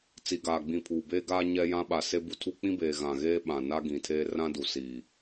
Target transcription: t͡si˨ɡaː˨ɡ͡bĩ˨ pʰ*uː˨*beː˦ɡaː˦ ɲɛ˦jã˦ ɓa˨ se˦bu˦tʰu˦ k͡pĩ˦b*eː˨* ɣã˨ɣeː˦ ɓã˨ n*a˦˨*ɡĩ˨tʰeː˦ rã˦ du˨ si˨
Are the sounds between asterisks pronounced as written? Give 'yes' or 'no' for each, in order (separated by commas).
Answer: yes, yes, no